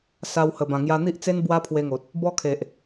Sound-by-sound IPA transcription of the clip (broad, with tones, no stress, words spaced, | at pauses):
sa˧whə˨˩bã˨˩ ŋja˧n̪i˦ʔt͡se˦n bwa˦pʰwe˧ŋo˨t̚ | bɔ˦kʰe˨ʔ